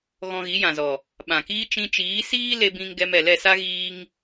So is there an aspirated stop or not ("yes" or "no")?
no